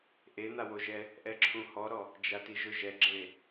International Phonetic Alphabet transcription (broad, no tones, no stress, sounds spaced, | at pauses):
ʔ e n̪ a w o ʒ ɛ | ʔ ɛ ǁʰ ũ h ɔ ɾ ɔ | d͡ʒ a t i ʒ ʊ ʒ ɛ ɡ͡ǁ e